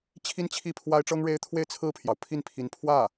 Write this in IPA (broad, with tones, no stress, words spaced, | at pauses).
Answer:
t͡ɕʰi˥nt͡ɕʰi˥˩ pʰwa˥ɪ̯ʈ͡ʂɤ˥ŋɻe˥ɪ̯ t̪ʰwe˥˧ɪ̯t͡sʰɹ̩˥˩pʰjɑ˩ʊ̯ pʰi˥˩npʰi˧˥n pʰwä˥˩